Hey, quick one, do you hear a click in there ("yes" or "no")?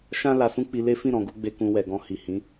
no